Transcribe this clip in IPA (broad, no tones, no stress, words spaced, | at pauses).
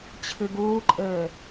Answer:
t͡ɕʰɨɡuːǃʼɘː